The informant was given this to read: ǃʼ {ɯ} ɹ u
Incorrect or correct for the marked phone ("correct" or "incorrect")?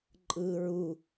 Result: correct